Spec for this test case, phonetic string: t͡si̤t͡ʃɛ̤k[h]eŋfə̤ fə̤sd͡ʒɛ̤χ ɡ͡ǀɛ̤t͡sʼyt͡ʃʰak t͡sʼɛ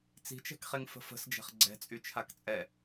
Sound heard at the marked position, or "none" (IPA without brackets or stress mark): χ